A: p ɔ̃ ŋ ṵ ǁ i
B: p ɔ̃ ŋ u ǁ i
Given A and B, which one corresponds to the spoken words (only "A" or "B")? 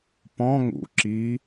A